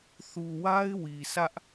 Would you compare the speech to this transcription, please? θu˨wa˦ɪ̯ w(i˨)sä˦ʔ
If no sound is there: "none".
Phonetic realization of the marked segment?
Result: i˨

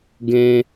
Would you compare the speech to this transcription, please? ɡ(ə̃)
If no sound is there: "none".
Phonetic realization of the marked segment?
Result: ɛ̃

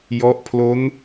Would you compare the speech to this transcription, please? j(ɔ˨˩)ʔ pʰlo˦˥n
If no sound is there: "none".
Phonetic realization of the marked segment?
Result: ɔ˦˥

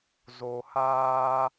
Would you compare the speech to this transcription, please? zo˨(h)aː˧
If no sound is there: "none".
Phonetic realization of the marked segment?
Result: h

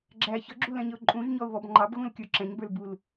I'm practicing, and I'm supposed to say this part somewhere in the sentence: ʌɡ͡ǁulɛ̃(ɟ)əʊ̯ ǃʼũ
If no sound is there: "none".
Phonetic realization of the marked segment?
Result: ɲ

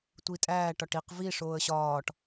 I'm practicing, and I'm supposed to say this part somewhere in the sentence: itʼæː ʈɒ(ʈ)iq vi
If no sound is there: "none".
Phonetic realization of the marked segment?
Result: ʈ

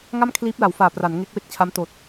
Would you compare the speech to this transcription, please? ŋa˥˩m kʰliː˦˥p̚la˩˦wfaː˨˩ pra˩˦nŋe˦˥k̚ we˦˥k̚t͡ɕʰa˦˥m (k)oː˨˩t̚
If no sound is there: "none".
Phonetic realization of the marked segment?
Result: t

